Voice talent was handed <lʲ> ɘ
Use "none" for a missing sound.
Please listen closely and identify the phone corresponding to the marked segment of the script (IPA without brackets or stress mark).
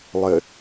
lˠ